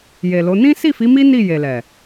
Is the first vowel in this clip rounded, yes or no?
no